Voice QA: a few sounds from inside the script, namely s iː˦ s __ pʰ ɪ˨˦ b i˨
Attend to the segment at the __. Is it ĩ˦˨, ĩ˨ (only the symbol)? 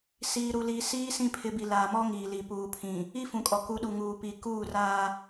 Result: ĩ˦˨